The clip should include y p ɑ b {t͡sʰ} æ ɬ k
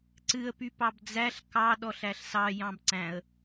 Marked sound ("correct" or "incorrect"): incorrect